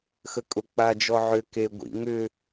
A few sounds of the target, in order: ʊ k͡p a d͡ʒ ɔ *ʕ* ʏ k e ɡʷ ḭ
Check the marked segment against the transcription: correct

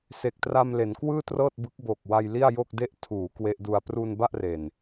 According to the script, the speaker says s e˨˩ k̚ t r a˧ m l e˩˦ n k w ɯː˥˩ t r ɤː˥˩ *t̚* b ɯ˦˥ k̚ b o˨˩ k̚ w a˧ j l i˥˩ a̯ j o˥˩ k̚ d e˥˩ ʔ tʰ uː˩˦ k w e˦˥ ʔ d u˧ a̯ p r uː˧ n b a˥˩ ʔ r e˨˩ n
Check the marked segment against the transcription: correct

